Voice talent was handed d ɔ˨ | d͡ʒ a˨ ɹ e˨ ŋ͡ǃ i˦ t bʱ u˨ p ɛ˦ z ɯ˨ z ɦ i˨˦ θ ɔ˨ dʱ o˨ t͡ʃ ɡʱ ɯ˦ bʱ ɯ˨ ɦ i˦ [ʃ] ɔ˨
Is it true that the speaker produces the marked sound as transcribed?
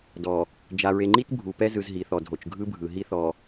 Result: no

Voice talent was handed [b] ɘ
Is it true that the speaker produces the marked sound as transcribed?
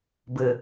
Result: yes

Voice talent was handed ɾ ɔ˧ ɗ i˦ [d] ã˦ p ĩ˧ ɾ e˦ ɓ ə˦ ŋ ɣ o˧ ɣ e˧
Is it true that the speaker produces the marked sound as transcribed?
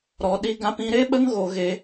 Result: no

